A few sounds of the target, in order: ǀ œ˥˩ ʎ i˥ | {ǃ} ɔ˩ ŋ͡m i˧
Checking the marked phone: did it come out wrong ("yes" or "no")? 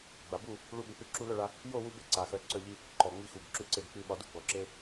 no